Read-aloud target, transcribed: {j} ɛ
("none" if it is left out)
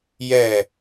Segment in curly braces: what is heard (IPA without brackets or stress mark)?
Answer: j